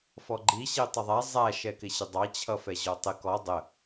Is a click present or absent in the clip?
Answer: present